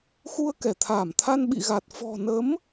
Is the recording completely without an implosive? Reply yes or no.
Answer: no